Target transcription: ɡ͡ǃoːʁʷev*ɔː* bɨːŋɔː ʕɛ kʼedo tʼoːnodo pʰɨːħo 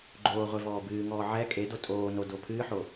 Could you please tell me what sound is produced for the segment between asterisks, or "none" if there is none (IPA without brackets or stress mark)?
ɔː